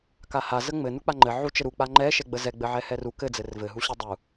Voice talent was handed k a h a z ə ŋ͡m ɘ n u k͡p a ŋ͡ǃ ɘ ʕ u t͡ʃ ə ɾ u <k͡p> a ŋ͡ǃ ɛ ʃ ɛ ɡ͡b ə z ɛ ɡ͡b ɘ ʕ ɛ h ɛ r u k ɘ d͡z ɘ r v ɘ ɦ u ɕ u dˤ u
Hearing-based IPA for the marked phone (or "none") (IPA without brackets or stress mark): k͡p